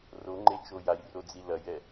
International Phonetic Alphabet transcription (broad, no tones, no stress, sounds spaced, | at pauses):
r o ŋ͡ǃ e t͡ʃ o j a j r o d͡z i l ɐ j ɛ